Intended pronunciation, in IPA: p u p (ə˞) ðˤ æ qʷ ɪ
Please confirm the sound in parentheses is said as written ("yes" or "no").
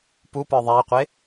yes